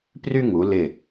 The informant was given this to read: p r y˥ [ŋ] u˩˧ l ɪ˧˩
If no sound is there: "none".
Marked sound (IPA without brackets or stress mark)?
ŋ